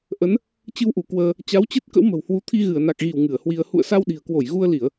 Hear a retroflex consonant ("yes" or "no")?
no